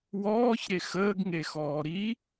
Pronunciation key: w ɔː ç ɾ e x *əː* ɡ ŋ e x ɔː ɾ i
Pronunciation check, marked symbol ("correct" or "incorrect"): correct